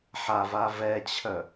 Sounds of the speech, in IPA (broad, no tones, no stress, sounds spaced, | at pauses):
ħ a v a v ɛ t͡ɕʰ œ